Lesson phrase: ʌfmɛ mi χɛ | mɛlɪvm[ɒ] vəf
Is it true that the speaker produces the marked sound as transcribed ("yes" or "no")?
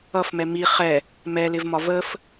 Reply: yes